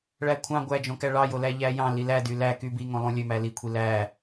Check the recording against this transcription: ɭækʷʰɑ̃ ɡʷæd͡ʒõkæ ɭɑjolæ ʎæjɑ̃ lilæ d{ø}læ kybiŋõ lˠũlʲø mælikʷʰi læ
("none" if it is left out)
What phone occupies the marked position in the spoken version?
y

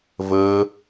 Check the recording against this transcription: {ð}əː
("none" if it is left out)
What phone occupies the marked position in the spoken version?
v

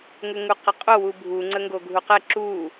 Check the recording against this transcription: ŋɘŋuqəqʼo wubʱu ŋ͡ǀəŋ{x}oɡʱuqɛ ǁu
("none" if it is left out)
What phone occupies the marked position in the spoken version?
ɡ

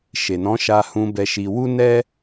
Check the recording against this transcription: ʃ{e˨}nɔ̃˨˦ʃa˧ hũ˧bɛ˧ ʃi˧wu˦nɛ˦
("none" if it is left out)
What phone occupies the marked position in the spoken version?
e˨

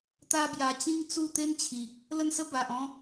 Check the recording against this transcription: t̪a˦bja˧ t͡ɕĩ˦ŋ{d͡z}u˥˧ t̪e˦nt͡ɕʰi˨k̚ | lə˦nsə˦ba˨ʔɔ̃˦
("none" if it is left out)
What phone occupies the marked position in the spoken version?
t͡s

